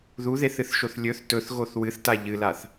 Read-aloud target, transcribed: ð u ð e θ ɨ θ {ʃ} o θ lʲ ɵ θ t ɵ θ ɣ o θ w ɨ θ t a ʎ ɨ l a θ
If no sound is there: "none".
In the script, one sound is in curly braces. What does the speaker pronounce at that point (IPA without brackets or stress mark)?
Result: ʃ